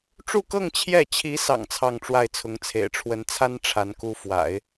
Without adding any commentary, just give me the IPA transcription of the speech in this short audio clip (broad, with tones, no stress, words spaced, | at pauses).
ʈ͡ʂu˥˧kɤ˥˧ŋ t͡ɕʰjɛ˥˩ t͡ɕʰi˧˥sɑ̰˨˩ŋ t͡sʰɑ˥˧ŋʈ͡ʂwa˥˩ɪ̯t͡sʰʊ˧˥ŋt͡sʰḛ˨˩ɪ̯ ʈ͡ʂʰwə˧˥nt͡sʰa˥n ʈ͡ʂʰa˧˥nku˥ fwa̰˨˩˦ɪ̯